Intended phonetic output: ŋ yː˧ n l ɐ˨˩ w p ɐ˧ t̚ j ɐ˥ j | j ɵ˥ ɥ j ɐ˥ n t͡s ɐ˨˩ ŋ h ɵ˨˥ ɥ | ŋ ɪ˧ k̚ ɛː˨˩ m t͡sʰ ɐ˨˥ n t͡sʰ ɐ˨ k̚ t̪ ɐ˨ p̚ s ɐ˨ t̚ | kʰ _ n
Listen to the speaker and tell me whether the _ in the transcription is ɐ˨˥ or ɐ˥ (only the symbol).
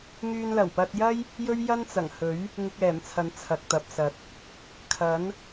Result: ɐ˨˥